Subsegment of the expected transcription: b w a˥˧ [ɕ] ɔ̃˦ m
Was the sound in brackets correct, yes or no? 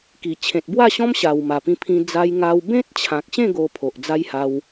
yes